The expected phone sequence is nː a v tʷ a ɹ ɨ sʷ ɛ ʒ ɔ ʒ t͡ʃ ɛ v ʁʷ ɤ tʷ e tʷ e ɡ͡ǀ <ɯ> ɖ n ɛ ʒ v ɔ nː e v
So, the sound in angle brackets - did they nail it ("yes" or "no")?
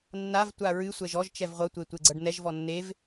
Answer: no